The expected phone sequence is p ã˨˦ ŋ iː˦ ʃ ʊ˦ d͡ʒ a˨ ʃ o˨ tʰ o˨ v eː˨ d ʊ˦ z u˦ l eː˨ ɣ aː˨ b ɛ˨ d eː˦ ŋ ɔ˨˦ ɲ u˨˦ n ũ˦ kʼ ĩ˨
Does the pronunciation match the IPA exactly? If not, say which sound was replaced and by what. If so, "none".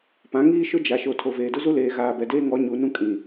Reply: none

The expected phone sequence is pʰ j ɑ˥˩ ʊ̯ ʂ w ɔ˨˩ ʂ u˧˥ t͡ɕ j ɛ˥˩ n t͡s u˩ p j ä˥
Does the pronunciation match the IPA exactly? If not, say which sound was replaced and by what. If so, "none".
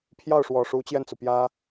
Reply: none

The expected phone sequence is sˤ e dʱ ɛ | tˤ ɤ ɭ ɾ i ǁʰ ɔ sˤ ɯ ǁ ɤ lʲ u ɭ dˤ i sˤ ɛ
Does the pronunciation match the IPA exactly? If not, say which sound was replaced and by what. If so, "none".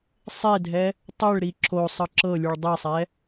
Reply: ɔ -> o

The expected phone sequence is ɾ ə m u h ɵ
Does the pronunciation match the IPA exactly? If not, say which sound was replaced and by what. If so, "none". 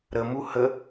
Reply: ɵ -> ə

